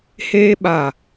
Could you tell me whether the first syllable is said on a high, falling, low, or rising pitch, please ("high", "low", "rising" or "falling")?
high